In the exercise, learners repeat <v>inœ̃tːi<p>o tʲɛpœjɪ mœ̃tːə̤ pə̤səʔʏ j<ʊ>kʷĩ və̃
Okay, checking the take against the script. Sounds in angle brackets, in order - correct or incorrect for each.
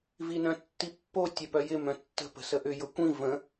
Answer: correct, incorrect: pː, correct

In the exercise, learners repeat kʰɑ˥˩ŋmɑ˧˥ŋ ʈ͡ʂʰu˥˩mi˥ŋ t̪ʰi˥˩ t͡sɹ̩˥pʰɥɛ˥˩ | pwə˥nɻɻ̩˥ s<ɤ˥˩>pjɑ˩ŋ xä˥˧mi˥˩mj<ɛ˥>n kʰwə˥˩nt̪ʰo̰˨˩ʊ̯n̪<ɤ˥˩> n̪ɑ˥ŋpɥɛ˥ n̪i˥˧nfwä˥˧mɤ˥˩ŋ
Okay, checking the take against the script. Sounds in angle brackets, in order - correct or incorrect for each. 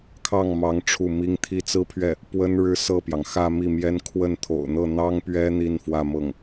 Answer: correct, correct, correct

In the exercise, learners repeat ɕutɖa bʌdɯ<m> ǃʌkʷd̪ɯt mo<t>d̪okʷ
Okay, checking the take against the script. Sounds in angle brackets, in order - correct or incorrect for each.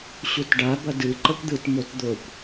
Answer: incorrect: none, correct

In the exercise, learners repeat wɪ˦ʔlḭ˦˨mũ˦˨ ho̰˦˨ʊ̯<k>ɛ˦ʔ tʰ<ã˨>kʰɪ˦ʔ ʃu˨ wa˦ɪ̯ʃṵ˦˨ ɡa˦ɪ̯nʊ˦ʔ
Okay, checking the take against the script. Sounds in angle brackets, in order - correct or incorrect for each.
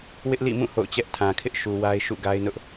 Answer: incorrect: t͡ɕ, correct

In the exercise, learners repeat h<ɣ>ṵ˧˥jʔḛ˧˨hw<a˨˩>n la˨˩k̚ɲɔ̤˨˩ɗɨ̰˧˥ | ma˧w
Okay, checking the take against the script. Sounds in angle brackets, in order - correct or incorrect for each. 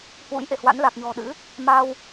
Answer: incorrect: w, incorrect: a̰˧˥

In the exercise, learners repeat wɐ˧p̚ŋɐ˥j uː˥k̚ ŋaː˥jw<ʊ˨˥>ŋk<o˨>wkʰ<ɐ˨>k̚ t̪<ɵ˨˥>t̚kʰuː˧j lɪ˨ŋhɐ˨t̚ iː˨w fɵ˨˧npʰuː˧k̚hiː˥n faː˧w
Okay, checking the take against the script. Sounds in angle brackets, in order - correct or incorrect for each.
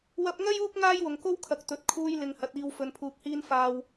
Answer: incorrect: ʊ˨, incorrect: o˥, correct, correct

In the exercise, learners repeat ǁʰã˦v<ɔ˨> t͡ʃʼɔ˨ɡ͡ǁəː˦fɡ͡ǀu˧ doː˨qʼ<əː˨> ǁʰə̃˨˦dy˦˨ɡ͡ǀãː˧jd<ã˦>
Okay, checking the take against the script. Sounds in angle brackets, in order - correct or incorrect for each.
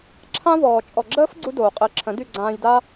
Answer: incorrect: ɔː˨, incorrect: əː˧, incorrect: a˦

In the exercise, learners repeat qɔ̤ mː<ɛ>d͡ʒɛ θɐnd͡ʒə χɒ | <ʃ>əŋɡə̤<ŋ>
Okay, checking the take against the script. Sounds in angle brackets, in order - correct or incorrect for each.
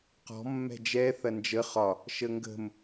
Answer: incorrect: ɛ̤, correct, incorrect: m

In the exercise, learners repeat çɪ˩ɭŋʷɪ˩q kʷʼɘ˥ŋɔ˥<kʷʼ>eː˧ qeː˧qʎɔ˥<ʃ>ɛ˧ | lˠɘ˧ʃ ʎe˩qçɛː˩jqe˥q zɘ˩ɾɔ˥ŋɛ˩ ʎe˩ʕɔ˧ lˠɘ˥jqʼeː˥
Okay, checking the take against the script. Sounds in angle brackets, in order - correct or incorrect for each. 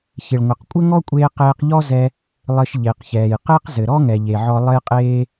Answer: correct, incorrect: z

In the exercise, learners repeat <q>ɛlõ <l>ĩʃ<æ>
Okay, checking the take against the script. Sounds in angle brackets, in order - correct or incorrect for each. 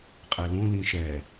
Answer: incorrect: qʼ, correct, incorrect: ɛ

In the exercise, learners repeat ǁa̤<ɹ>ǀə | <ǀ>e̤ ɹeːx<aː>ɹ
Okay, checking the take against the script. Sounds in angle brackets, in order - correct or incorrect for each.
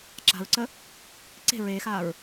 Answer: correct, correct, correct

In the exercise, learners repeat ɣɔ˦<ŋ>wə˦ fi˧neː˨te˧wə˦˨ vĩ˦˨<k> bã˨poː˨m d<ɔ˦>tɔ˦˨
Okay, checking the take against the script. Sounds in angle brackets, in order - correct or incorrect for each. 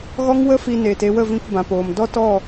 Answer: correct, correct, correct

